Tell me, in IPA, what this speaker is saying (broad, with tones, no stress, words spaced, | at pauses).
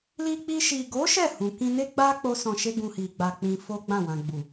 li˧k͡pi˧ ʃi˨ɡo˨˦ ʃɛ˦˨hũ˨kĩ˧ne˦ ɡ͡ba˦ k͡po˦sɔ̃˧ʃe˦ɡũ˧ hi˨ɡ͡ba˧k͡pĩ˧ fo˦ɡ͡bã˦˨wã˧ ɡ͡bu˨